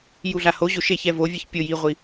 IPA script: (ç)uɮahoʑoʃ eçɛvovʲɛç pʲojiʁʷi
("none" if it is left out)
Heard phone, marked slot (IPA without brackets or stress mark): j